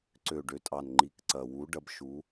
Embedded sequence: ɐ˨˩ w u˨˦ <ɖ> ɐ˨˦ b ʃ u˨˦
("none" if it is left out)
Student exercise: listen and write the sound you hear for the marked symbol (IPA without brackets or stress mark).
ɖ